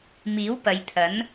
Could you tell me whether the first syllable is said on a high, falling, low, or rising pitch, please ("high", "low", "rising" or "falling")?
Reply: rising